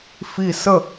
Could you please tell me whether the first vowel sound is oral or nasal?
oral